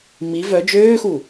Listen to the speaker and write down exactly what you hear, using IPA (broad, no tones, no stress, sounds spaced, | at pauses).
m i v œ d͡ʒ øː x u